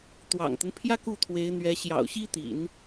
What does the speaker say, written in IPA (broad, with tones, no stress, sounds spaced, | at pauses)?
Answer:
t̪ w ɑ̰˨˩ ŋ t̪ ə˦ n pʰ j ä˥ k u˥˩ t̪ʰ w e˧˥ ɪ̯ n̪ ɥ ɛ˧˥ ɕ j ɑ̰˨˩ ʊ̯ ɕ i˥ t̪ ḭ˨˩˦ n